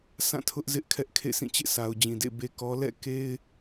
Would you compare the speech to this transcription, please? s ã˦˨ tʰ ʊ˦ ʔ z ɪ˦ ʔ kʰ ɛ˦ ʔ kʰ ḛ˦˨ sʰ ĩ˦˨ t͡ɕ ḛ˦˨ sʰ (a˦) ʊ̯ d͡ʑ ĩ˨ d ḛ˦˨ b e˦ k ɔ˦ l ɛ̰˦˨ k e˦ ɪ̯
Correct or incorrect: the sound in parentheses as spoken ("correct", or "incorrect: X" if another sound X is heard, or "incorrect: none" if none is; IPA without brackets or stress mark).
incorrect: a˨